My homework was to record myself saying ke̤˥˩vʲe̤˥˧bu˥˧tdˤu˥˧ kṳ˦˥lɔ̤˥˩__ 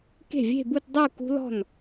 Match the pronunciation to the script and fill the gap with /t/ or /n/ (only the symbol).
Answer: n